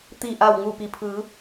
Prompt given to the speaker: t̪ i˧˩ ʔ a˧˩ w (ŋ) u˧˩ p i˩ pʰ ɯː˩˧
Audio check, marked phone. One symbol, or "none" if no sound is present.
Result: ŋ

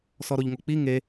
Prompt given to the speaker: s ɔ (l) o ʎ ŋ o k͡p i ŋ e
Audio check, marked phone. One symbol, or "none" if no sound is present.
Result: ɾ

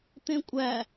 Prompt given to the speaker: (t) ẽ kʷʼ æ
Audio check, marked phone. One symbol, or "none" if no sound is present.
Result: t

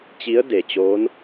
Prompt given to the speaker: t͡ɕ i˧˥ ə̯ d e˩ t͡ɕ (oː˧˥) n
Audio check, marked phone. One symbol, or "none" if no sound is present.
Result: oː˧˥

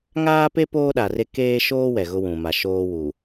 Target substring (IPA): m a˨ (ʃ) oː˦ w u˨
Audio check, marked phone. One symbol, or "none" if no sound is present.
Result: ʃ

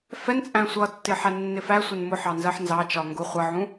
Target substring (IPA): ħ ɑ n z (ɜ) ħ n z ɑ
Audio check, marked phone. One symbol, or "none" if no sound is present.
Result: ɜ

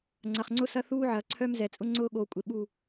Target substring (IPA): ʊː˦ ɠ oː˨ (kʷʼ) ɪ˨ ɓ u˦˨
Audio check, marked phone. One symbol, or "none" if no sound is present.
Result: kʷʼ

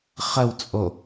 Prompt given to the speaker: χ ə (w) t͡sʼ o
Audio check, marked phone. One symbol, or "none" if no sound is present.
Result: w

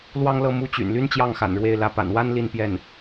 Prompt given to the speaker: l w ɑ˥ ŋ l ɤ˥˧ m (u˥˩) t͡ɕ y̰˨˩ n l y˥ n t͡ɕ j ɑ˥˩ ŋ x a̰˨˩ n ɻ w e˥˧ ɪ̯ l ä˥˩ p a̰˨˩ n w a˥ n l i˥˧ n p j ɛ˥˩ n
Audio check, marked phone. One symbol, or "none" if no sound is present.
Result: u˥˩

